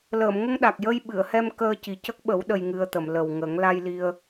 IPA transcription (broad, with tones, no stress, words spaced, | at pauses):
ləː˨˩˨mŋə˧ŋɗa˨˩k̚ jə˧j ɓɨ˨˩˨ə̯hɛ˧m kəː˧ci˨˩cə˦˥k̚ɓə˨˩˦w ɗə˧jŋɨ˧ə̯t̪ə˨˩˨m lə˨˩wŋə˨˩˦ŋ la˧jli˧ə̯